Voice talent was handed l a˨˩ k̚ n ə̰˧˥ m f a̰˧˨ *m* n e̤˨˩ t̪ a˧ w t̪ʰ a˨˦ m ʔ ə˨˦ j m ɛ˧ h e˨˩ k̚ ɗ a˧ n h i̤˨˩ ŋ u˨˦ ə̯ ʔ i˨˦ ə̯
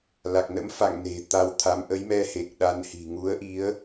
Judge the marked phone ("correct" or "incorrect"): incorrect